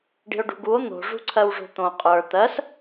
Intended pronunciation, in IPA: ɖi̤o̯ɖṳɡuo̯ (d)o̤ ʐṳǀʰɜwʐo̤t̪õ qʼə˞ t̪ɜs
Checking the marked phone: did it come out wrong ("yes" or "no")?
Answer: yes